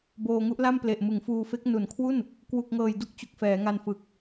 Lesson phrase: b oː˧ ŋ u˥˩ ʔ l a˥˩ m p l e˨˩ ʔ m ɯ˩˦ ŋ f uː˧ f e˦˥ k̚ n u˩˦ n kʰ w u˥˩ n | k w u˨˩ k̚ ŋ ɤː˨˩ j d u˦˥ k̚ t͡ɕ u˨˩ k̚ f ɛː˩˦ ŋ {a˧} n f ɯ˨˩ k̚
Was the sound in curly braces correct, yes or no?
yes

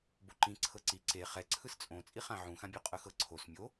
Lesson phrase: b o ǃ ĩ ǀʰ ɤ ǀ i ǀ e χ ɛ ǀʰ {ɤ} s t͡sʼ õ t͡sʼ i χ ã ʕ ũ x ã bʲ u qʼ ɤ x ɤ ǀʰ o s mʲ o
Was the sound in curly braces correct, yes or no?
no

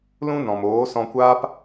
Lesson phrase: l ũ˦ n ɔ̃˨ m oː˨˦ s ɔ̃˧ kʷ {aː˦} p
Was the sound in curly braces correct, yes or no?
yes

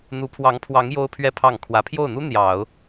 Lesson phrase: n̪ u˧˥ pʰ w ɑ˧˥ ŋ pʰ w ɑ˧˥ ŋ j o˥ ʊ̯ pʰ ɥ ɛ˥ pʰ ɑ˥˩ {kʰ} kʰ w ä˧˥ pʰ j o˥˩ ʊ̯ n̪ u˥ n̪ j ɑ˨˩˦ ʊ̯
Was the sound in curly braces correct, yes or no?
no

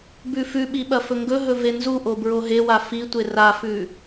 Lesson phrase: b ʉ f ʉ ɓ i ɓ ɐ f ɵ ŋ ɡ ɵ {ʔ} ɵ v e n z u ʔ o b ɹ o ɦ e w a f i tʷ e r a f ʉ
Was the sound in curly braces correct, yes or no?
no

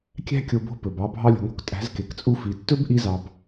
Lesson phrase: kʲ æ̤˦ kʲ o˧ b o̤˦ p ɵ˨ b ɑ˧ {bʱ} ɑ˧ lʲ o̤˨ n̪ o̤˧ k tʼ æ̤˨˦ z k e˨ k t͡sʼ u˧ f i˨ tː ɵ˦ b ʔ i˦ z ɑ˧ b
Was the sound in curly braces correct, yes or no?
yes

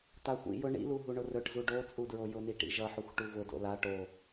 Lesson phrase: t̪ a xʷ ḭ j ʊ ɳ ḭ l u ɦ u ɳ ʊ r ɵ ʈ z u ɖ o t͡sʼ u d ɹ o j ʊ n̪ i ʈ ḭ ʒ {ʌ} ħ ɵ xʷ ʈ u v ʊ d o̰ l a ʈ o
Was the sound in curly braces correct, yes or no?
yes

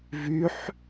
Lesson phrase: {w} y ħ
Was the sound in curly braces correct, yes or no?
no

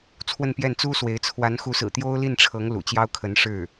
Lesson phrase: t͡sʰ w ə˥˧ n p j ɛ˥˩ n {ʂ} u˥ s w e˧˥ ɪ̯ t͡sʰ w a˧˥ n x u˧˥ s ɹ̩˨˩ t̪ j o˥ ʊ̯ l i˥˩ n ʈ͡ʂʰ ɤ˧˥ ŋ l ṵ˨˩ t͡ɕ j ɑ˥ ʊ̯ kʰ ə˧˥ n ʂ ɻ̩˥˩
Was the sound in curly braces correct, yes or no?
no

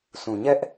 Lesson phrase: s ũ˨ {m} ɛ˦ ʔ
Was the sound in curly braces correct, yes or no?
no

